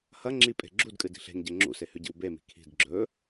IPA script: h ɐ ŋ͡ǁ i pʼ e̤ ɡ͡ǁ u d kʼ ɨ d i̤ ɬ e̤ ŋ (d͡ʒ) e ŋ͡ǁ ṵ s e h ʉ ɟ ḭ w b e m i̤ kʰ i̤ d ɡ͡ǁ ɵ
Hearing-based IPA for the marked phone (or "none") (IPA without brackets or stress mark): ɟ